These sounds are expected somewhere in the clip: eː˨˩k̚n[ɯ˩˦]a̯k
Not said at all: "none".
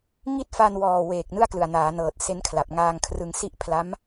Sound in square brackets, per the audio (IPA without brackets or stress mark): ɯ˥˩